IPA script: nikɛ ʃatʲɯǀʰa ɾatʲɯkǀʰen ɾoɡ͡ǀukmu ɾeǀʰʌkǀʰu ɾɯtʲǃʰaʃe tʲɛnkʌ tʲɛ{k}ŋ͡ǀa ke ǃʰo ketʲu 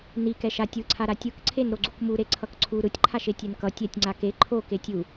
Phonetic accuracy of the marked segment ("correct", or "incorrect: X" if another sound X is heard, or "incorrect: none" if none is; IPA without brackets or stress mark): incorrect: tʲ